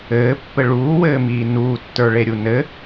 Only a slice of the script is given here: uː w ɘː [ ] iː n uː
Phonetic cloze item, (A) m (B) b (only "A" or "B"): A